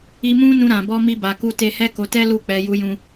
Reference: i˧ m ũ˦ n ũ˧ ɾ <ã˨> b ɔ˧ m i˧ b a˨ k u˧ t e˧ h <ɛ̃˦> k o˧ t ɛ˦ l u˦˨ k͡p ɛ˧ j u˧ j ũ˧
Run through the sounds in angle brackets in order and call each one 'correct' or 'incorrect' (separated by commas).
correct, incorrect